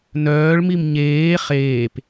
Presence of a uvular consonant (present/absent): present